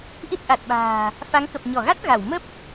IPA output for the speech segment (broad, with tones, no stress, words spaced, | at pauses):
ʔi˦˥t̚ʔa˨˩t̚ɓa̤ː˨˩ | fa˨˦ŋkə˨˩p̚ ɲɔ˧˩ɣa˦˥t̚ ɣa˧˩w mə˦˥p̚